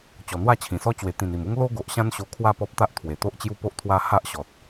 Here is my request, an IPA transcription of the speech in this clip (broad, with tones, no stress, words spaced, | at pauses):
t͡ɕɔ˨˩n̪wa˥˧t͡ɕʰĩ˨˩sɔ˦ t͡ɕwe˨˩t̪ĩ˨˩ni˨˩mu˦ŋ lo˦ɡo˨ʔ ɕã˦nɕo˧kʰwa˥˧ pɔ˦p̚t̪a˦ʔ t̪ʰwe˨˩t̪o˦ʔt͡ɕju˦po˦ʔ t̪ʰwa˧ ha˦ʔɕɔ˨t̚